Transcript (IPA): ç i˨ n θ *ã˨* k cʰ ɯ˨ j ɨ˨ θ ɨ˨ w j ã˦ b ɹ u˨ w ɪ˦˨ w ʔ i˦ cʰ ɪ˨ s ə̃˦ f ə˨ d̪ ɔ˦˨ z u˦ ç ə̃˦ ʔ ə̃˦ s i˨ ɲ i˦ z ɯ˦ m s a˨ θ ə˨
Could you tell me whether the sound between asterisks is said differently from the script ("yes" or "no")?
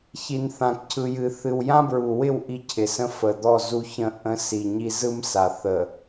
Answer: no